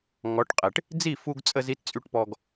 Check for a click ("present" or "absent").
absent